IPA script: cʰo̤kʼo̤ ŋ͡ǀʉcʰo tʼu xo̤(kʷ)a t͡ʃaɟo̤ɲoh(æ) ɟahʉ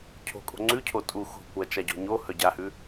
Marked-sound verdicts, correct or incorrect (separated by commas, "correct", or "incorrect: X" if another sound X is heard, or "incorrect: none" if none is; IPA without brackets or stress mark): correct, incorrect: œ